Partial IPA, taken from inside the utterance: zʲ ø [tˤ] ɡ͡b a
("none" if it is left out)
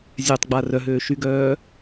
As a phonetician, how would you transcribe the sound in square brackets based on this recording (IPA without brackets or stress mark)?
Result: tˤ